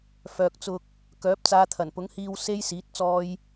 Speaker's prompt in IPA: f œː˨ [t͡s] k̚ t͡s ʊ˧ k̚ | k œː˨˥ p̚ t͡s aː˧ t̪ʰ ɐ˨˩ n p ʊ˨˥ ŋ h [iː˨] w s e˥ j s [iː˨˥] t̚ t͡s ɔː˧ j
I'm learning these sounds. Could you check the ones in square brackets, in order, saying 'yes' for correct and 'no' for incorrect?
no, no, yes

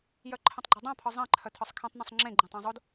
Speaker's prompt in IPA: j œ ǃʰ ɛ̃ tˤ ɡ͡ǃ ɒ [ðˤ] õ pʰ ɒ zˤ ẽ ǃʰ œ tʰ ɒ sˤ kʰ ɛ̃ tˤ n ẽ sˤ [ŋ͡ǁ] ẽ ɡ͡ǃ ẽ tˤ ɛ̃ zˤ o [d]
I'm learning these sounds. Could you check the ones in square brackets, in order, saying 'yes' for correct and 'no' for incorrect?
no, yes, yes

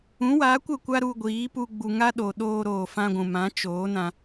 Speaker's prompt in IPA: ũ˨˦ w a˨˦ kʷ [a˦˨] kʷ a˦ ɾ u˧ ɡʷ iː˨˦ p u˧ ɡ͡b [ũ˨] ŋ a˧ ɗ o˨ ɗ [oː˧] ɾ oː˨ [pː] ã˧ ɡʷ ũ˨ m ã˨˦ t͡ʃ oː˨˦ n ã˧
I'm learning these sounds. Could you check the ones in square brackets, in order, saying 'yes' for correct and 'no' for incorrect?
no, no, yes, no

